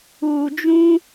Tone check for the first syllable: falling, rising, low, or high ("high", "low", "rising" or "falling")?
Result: low